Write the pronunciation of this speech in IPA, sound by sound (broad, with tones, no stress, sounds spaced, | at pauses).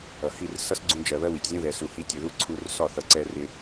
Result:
ʌ˨ h i˦˨ r s ʌ˦ s ɡ͡ǀ ũ˧ d͡ʒ ɜ˨ β ɜ˦ w i˨ tʲ zʲ ũ˦ ð ɛ˨ s u˨ h i˧ tʲ ʊ˨ ð u˦ ǀʰ u˧ r s ɒ˦˨ θ ʌ˨ ǀ ɛ˧ r ɪ˧